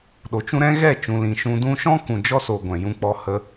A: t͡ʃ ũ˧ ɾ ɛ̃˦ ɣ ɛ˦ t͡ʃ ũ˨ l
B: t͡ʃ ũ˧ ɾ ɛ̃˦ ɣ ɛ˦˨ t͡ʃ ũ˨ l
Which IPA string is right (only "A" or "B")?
B